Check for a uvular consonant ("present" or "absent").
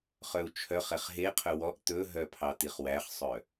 present